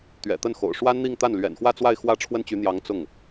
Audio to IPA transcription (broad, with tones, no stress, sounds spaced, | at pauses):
t̪ ɥ ɛ̰˨˩ t̪ ə˥˩ n x o̰˨˩ ʊ̯ ʂ w a˥ n n̪ i˥˧ ŋ t̪ a˥˩ n l ɥ ɛ̰˨˩ n x w ä˥˧ t͡s w a˥˧ ɪ̯ x w ä˥˩ ʈ͡ʂʰ w ə˥ n t͡ɕ y˧˥ n̪ j ɑ˧˥ ŋ t͡s ʊ˥˩ ŋ